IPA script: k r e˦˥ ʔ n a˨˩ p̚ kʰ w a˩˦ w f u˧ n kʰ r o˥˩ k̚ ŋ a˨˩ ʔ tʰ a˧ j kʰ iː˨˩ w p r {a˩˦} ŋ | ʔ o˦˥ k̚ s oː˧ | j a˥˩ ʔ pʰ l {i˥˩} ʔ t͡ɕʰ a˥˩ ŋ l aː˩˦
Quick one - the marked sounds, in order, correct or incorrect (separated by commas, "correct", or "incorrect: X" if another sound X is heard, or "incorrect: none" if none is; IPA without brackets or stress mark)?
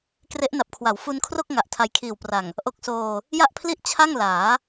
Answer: incorrect: a˨˩, correct